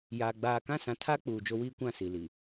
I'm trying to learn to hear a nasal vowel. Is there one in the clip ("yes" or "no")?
yes